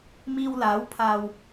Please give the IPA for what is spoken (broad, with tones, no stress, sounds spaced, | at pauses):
m iː˧ w l aː˨˥ w pʰ aː˨ w